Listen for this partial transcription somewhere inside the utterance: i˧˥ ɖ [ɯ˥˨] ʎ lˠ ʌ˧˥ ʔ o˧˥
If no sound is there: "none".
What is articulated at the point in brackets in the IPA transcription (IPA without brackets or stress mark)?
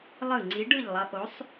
ɯ˥˨